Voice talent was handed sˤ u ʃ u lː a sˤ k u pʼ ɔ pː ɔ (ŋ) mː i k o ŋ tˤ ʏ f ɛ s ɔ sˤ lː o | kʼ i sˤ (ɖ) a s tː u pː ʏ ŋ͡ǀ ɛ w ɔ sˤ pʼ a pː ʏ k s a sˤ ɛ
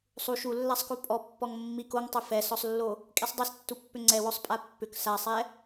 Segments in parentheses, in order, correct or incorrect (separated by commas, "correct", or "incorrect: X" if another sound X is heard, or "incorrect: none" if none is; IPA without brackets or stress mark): correct, incorrect: dˤ